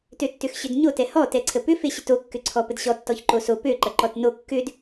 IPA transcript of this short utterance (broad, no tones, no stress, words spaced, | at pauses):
tøtːʏxɕʏdɲo tɛhɔ tɛǀʰəpʏ feɕʏto kːʏǀʰɔpədɕɔ tːɔçǃoso pø ǃɐǃɔtno kːʏd